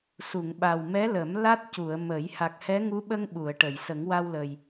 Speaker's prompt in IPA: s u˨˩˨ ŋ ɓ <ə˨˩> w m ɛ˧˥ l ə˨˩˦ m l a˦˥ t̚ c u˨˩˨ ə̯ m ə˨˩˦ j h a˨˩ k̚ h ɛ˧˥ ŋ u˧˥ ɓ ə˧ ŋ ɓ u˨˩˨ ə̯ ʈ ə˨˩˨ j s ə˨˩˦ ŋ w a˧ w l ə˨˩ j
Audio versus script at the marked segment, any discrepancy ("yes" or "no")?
yes